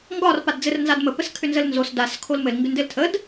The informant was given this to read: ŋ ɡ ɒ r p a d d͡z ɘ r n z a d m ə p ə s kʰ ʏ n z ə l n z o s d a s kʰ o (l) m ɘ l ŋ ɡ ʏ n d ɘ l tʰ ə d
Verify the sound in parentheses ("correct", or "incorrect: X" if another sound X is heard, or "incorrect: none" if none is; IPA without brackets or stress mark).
correct